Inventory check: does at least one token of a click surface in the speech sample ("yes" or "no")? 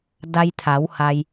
no